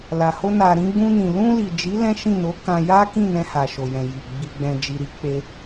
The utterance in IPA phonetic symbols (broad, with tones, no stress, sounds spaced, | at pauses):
l a˨ h o˧ n a˨ ɾ ĩ˧ ɡ͡b ũ˧ n ĩ˨ l ũ˧ l i˨ d͡ʒ i˨˦ l ɛ̃˦ ʃ ĩ˦˨ n o˨˦ k ã˧ j a˦ k ĩ˦˨ n ɛ̃˧ h a˨ ʃ o˨ j ɛ̃˨ j i˨ ɡ͡b i˨ ɡ͡b ɛ̃˨ d͡ʒ i˨ ɾ i˨˦ k͡p e˦